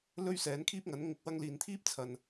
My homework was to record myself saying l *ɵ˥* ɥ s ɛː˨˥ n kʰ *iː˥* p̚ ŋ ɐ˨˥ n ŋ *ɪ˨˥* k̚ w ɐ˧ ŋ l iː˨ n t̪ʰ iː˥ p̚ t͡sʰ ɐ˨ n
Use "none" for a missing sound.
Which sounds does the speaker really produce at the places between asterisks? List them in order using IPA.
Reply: ɵ˥, iː˥, ɪ˧

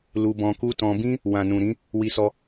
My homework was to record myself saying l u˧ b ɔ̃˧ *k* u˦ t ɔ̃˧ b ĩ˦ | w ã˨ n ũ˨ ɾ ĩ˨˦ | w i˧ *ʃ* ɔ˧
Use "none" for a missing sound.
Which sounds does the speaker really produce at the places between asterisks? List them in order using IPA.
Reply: k, s

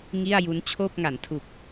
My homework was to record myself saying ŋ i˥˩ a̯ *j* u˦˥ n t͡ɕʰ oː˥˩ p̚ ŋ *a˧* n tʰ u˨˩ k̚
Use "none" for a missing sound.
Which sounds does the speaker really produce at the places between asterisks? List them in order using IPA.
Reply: j, a˩˦

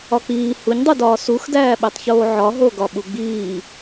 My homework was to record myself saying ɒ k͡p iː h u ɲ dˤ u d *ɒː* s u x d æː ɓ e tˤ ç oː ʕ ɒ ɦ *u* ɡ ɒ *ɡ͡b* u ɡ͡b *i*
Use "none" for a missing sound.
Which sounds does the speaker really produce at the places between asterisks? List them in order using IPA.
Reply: ɒː, o, ɓ, iː

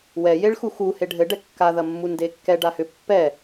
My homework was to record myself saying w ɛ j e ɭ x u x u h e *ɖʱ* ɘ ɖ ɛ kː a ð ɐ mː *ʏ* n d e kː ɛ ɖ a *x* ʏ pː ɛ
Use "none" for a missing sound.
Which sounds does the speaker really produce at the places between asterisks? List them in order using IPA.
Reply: ɖʱ, u, h

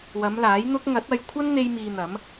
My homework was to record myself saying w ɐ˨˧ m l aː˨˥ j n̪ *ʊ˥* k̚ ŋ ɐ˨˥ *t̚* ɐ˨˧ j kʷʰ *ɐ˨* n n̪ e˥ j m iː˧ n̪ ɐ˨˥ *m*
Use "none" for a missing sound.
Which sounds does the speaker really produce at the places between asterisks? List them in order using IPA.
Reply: ʊ˥, t̚, ɐ˥, m

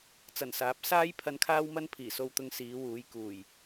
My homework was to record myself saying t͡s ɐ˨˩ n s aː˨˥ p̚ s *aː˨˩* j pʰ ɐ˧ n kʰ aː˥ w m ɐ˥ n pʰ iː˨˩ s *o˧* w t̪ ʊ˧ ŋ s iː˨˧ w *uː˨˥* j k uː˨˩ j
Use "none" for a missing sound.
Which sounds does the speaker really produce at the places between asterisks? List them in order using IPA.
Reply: aː˥, o˧, uː˨˧

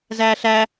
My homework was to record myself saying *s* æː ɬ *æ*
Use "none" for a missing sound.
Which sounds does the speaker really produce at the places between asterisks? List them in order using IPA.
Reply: z, æ

